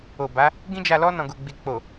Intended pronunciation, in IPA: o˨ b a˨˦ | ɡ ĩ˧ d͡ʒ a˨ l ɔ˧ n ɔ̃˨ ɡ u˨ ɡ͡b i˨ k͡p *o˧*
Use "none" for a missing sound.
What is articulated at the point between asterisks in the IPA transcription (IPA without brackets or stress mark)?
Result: o˨